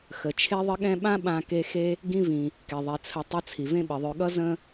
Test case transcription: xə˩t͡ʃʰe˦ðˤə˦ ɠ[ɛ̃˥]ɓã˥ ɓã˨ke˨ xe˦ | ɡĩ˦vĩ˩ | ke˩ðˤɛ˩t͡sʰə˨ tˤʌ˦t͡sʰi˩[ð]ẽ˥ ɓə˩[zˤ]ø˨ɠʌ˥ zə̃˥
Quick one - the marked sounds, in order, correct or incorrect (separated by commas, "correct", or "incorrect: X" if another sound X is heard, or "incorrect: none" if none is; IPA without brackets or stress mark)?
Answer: correct, incorrect: v, incorrect: ðˤ